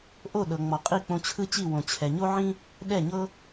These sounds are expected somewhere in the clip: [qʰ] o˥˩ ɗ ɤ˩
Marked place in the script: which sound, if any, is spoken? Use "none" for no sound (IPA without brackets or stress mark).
ʔ